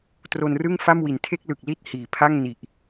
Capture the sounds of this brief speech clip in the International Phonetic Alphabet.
t r o˧ n r ɯ˥˩ ŋ f a˥˩ m w i˩˦ n tʰ e˥˩ k̚ l ɯ˨˩ k̚ l i˥˩ t̚ h iː˨˩ pʰ a˥˩ ŋ n i˨˩ ʔ

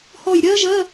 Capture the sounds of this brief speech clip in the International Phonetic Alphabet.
h ɔ˧˩ j ɾʲ ɜ˥ ʒ ɜ˧˥˧

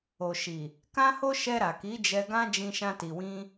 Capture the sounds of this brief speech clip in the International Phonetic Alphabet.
o˨ ʃ i˨ | k ã˦ h o˦ ʃ ɛ˧ ɾ a˨ k i˨˦ d͡ʒ ɛ˧ ɡ ã˦ d͡ʒ ĩ˧ ʃ ã˧ t i˨ w ĩ˧

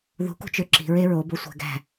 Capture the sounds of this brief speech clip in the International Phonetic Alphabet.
ð ṳ k ṳ t͡ʃ ø ǁ i̤ ɹ e ɹ o b o sʷ æ̤ ɡ æ̤

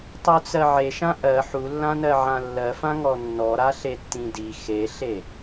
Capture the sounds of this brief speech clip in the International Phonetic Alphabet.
tˤ u t͡s ɜ ʕ e ʃ ã ʔ ɜ ħ u lː ã n ɜ ʕ ã lː ɜ f ã ŋ ɔ nː ɔ ɾ a ɬ e tː ĩ d i x e ɬ e

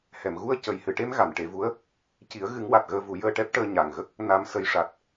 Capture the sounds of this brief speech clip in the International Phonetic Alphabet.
h ɛ˨˩˨ m ɣ u˧ ə̯ c ə˨˩ j h ɨ˨˩ ʈ e˧ m ɣ a˨˩˨ n ʈ e˨˩˦ v u˧˥ ə̯ | c i˨˩˦ ə̯ ɣ ɨ˨˩˦ ŋ w a˨˩ t̚ ɣ əː˧ v u˨˩˦ j əː˧ ʈ ɛ˦˥ p̚ ʈ əː˧ ɲ a˨˩ ŋ ɣ ə˦˥ k̚ | n a˨˩ m s ə˨˩ j ʂ a˨˩ t̚

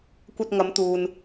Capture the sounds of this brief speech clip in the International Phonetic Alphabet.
kʷ ɐ˧ t̚ ŋ ɐ˨˧ m t̪ uː˨ n

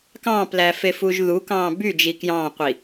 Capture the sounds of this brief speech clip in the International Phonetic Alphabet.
k ɑ̃ː p l æ f e f uː ʒ ð u k ɑ̃ː b y d͡ʒ i k j ɑ̃ː qʷ i

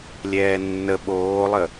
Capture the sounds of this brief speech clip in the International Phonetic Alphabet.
lʲ ɛː nː ə ɓ oː lˠ ə

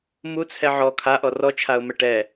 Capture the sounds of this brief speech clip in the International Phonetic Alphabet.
m u t͡sʰ ɛ ʕ ɔ kʰ a ʔ ɔ r ɔ t͡ʃʰ a ʊ̯ m ɛ ʈ ɛ

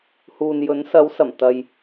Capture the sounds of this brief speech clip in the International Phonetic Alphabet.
h uː˨ n j ɵ˨˥ n s ɐ˨˥ w s ɐ˨˩ m t̪ ɐ˨ j

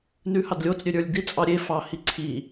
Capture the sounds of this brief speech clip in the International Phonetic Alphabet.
n ʉ h ɑ d lʲ o t͡s ɾʲ ø ɾʲ ə˞ lʲ d̪ i t͡sʼ ɑ ɾʲ e f ɑ h i ǀʰ i

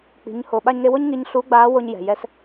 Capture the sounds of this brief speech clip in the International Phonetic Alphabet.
k͡p i̤˩˧ ɲ h o˩ ɓ a˧ ɲ ŋ e˧ w o˥ ɲ ŋ i˧˥ ɲ ɬ u˧˥ ɡ͡b aː˧˥ w o˧ ɲ j ɛ̤˩ j ɛ˧˥ s

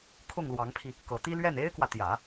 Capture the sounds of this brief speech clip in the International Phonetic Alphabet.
kʰ ʊ˥˩ ŋ l w ɑ˧˥ ŋ pʰ i˧ | k ɤ˨˩ t̪ i˥ l ɥ ɛ˥˩ n e˥ ɪ̯ k w ä˨ t̪ j ä˨˩˦

